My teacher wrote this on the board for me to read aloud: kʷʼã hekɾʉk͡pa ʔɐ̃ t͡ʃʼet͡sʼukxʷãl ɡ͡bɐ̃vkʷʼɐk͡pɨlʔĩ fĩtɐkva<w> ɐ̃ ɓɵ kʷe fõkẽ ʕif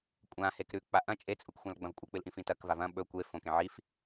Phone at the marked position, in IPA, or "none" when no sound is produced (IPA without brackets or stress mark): v